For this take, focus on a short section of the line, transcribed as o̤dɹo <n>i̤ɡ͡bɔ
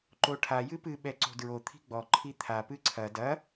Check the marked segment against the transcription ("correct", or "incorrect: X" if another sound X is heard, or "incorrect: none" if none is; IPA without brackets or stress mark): incorrect: t̪ʰ